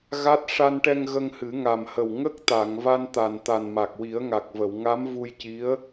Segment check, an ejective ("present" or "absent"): absent